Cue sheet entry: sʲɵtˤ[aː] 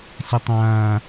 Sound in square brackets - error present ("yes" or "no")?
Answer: yes